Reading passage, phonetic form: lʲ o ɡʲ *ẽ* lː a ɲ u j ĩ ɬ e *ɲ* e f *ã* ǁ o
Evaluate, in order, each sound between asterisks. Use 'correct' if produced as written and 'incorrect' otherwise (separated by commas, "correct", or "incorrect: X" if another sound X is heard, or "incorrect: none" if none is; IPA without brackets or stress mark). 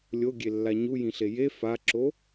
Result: incorrect: e, incorrect: j, incorrect: a